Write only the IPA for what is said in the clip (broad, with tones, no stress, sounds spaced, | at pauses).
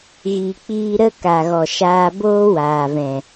ɣ i˨ k͡p iː˧ ɾ ə˦ k a˨ ɣ ɔ˨ ʃ aː˧ b oː˦ w aː˨ v ɛ̃˨